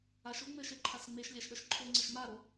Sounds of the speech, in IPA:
a ʃ o ŋ͡m ɘ ʃ e ǃʰ a s ŋ͡m e ʃ lʲ a ʃ ɗ ɐ ʃ ǃʰ o ŋ͡ǀ ɐ ʃ m a ɾ o

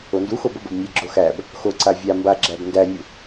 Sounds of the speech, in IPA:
o n d u x o b o b ɘ b nʲ ɛ ɡ͡ǁ o x æ b | x o ǀ a vʲ a m b a ɡ͡ǁ æ b n d æ nʲ u

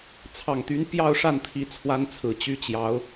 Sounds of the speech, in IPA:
t͡sʰ ɑ˨˩ ŋ t̪ y˧˥ n p j ɑ˥˧ ʊ̯ ʂ a˥˩ n t̪ʰ i˧˥ t͡sʰ w a˥ n t͡sʰ ɹ̩˨˩ t͡ɕ y˥ t͡ɕ j ɑ˧˥ ʊ̯

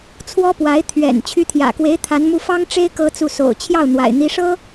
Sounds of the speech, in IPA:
t͡sʰ w ɔ˥ p w a˧˥ ɪ̯ t̪ʰ ɥ ɛ̰˨˩ n t͡ɕʰ y˧˥ t̪ʰ j ä̰˨˩ k w e˧˥ ɪ̯ t̪ʰ a˧˥ n m u˥˩ f ɑ˥ ŋ ʈ͡ʂ e˥ ɪ̯ k ɤ˥ t͡s u˥˩ s o̰˨˩ ʊ̯ t͡ɕʰ j ɑ˥˩ ʊ̯ n̪ w a̰˨˩ ɪ̯ n̪ i˧˥ ʂ ɤ˥

